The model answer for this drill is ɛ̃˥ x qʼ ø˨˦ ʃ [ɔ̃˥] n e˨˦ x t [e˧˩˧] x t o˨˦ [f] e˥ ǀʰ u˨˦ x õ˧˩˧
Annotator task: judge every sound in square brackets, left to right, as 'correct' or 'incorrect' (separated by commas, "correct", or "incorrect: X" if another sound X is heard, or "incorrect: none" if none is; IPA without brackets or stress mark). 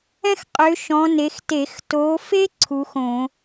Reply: incorrect: ɔ̃˨˦, correct, correct